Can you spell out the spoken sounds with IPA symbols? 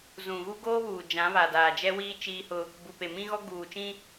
z ũ˨ ɣ u˦ ɡ oː˦ β uː˨ d͡ʒ ã˨˦ β a˨ d aː˨ d͡ʒ ɛ˦ w iː˦ t͡ʃ iː˦ h ʊ˦ | b u˨ p e˨ m ĩ˦ ɣ ɔ˦ ɡ uː˨ t͡ʃ ĩ˦

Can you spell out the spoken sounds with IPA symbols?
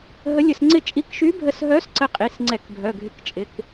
ɦ ə˧˥ lʲ ə˧ s ŋ͡ǀ ɪ˥˧ t͡ʃʼ i˧ k ʃ y˧˥ bʱ ə˧ s ɦ œ˧˥ s ǀ ə˧˥ qʼ i˩˧˩ s ŋ͡ǀ ɛ˧˩˧ k bʱ œ˩˧˩ ɡʱ ɪ˧˩˧ k t͡ʃʼ ɪ˩˧˩ k

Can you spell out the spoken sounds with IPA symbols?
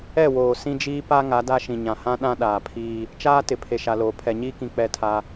ɛ˦˨ w oː˨ s ĩ˦ d͡ʒ iː˦ p a˦ ŋ a˨˦ d a˦ ʃ ĩ˨ ɲ ã˨ h ã˦ ɗ ã˦ ɗ aː˨ pʰ iː˦ | t͡ʃ aː˦ t ɪ˨ pʰ e˨ ʃ a˨ l oː˨ pʰ ɛ˨ ɲ iː˦ k ĩ˨ k͡p ɛ˦˨ tʰ a˦

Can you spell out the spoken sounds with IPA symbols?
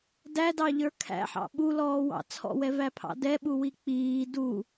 d æ d ɑ ʎ ə˞ kʰ æ̰ ħ ɑ̰ ɓ u l ɔː w ɑ̰ t͡sʰ ɔ̰ w ɛ v æ pʰ ɑ̰ d ɛ ɓ u w i k͡p iː d u

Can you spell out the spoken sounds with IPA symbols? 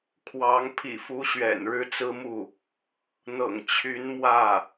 kʰ w ɑ˧˥ ŋ pʰ ḭ˨˩ f u˧˥ ɕ ɥ ɛ̰˨˩ n ɻ ɻ̩˥ t͡s ɹ̩˥ m u˥˩ | n̪ ɤ̰˨˩ ŋ t͡ɕʰ y˧˥ n m w ä˥˩

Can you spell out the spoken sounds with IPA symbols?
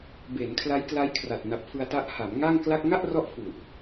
b e˩˦ n kʰ l a˦˥ j k l a˦˥ j kʰ r a˨˩ t̚ n a˨˩ p̚ f ɯ˧ a̯ t a˦˥ ʔ h a˩˦ m ŋ a˥˩ ŋ k l a˥˩ k̚ ŋ a˥˩ ʔ r ɔ˦˥ ʔ f u˨˩ ʔ

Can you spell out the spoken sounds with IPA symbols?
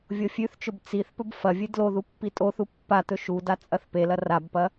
vʲ o fʲ ʉ θ t͡ʃ ɵ b t͡s i θ p ɵ b f ɐ vʲ ɨ d l o ð u pː i tʼ o θ u pː a t̪ ɵ ʃ u d a t͡sʼ ɐ θ p e l ɐ r a b p ɐ

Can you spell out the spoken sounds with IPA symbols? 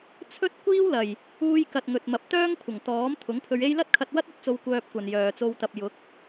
t͡sʰ ɵ˥ t̚ kʷ iː˥ w l ɐ˨˩ j | uː˧ j k ɐ˨ t̚ ŋ ɵ˨ t̚ m ɐ˨˥ p̚ t̪ œː˥ ŋ kʷʰ ɐ˨˩ ŋ t̪ ɔː˨˥ m t̪ʰ ʊ˨˥ ŋ pʰ ɵ˧ ɥ e˥ j l ɐ˥ t̚ kʰ ɐ˧ t̚ w ɐ˥ t̚ ɵ˥ t̚ t͡s o˧ w kʷ œː˧ p̚ kʷ ɐ˨ n j œː˨ t͡s o˧ w t̪ ɐ˨ p̚ j ʊ˨˥ k̚

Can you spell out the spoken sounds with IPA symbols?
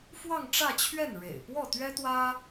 f w ɑ˥˧ ŋ ʈ͡ʂ ä˥˧ t͡ɕʰ ɥ ɛ˥˩ n ɻ ḛ˨˩ ɪ̯ p w ɔ˥˩ t̪ ɥ ɛ˥ t̪ w ä˥

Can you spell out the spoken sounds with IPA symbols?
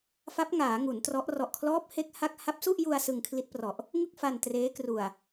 f a˦˥ p̚ ŋ aː˩˦ ŋ u˩˦ n t r ɔ˦˥ ʔ r ɔ˨˩ ʔ kʰ l ɔː˦˥ p̚ h e˦˥ k̚ h a˦˥ k̚ h a˦˥ p̚ s u˥˩ ʔ j u˧ a̯ s ɯ˧ ŋ kʰ l i˦˥ t̚ p r ɔ˨˩ ʔ | ŋ ɯ˥˩ k̚ f a˧ n t r eː˦˥ k r u˨˩ a̯

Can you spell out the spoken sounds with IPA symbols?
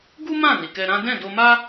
ɡ u˦ m ã˦˨ n i˨ k ɛ˧ ɾ ã˦ d ɛ̃˦˨ d o˧ m a˦

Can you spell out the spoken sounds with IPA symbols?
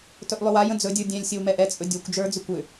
t ɵ ʔ lˠ ʏ w a j ə̃ d͡z ɵ dʲ ə˞ dʲ ɛ̃ lʲ sʲ ə w m ɛ ʔ ɛ t͡sʼ ɵ dʲ o kʷ d͡ʒ ə˞ d͡z ʏ kʷ ʏ

